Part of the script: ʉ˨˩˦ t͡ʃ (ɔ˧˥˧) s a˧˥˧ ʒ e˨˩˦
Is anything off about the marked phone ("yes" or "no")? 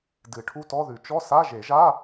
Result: no